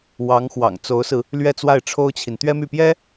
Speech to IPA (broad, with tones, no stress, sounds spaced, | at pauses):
w ɑ˧˥ ŋ x w ɑ̰˨˩ ŋ t͡s o˧˥ ʊ̯ s ɹ̩˧ | l ɥ ɛ˥˧ t͡s w a˥˩ ɪ̯ ʈ͡ʂʰ o˥ ʊ̯ t͡ɕʰ i˨ n t̪ ɥ ɛ˥ m y˥˩ p j ɛ˥